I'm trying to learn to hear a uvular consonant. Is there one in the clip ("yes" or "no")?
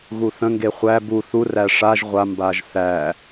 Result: yes